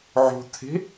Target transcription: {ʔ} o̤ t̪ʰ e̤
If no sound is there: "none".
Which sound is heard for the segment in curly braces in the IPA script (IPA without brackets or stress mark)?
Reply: ʕ